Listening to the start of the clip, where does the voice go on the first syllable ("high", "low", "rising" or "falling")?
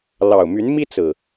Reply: low